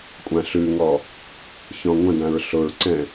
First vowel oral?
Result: no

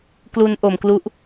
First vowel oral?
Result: yes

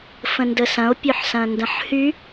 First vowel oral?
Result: no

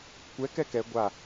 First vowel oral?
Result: yes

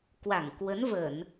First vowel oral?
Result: yes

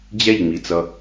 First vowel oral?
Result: yes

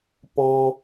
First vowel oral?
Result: no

